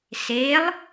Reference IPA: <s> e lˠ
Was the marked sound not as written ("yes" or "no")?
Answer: no